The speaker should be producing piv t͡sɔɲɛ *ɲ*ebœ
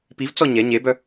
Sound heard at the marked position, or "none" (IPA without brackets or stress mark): ɲ